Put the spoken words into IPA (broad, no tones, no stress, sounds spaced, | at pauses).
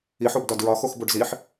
i ħ o b d ɒ d ɹ ɒ x o x b o ɖ z i ħ